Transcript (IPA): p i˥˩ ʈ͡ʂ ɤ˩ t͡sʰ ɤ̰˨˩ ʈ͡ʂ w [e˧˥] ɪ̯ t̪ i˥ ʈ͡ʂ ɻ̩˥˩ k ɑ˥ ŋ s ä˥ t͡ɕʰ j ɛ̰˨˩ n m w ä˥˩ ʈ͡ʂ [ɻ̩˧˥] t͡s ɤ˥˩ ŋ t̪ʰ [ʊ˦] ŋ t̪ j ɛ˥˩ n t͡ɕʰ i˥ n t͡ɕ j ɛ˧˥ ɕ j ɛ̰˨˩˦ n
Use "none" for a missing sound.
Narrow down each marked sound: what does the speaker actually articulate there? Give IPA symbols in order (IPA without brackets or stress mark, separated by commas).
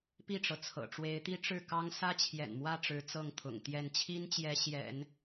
e˧˥, ɻ̩˧˥, ʊ̰˨˩